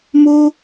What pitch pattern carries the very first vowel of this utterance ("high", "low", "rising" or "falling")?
high